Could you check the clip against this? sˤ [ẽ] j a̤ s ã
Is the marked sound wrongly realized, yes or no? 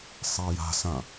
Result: yes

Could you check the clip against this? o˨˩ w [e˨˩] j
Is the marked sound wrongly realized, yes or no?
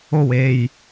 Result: no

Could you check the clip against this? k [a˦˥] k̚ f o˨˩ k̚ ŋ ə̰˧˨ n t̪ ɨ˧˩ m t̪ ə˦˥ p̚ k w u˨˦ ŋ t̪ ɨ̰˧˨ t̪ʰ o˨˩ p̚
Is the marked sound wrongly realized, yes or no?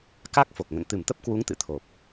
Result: no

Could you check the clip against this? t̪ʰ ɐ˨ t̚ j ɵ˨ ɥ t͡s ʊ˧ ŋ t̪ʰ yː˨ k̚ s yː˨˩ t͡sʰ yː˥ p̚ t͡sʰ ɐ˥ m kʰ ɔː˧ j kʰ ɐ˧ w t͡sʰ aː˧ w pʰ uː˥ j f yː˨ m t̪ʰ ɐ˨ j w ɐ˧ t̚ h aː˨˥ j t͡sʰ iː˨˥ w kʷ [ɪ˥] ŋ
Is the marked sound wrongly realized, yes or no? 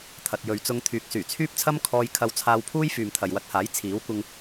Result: yes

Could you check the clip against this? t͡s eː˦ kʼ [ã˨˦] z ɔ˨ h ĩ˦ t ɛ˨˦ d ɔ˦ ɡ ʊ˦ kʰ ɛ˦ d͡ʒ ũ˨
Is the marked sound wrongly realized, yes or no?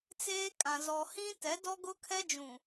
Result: yes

